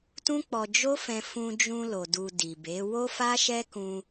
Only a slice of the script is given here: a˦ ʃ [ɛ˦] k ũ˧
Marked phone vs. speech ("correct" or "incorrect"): correct